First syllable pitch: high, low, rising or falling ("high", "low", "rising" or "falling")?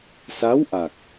rising